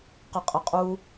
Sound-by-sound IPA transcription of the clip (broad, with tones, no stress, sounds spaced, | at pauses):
q ə˨ qʼ ə˨ qʼ u˦